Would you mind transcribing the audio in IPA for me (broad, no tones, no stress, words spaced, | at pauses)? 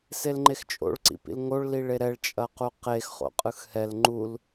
selŋ͡ǃext͡ʃʼo̰ɭ ǀḭpḭlŋoɭ liɭeɾɛɭ t͡ʃʼɐquqex χo̰qʼɯxhɛl ŋ͡ǃul